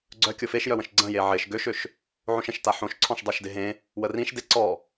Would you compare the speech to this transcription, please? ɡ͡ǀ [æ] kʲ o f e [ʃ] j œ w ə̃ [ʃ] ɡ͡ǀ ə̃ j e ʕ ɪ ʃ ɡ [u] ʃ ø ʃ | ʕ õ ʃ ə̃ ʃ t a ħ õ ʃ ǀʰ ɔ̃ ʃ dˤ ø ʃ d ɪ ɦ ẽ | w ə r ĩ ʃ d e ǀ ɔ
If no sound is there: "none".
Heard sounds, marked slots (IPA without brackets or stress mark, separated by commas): œ, ʃ, ʃ, ø